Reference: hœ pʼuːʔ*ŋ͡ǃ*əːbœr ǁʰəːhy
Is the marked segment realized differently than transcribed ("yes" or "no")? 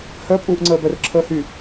yes